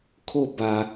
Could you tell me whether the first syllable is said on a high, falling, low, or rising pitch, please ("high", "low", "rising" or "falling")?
falling